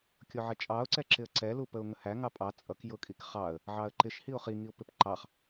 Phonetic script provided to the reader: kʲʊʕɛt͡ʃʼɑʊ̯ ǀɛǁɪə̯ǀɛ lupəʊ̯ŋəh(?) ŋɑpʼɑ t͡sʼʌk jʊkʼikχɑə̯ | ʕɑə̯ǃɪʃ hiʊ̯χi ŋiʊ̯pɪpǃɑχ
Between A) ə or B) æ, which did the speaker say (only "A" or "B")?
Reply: B